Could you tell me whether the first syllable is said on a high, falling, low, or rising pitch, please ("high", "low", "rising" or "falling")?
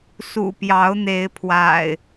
low